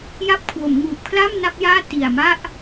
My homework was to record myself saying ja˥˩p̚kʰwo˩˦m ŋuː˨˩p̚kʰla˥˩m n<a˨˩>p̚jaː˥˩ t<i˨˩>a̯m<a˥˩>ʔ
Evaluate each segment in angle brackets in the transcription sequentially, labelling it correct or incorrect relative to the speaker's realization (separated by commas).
incorrect, correct, correct